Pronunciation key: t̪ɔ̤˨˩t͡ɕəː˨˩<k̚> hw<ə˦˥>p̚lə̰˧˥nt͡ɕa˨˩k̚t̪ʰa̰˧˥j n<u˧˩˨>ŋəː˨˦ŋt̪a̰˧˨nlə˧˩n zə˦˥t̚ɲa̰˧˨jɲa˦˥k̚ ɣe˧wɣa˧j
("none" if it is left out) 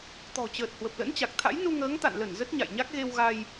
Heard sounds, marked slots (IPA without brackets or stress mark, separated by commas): t̚, ə˨˩, u˧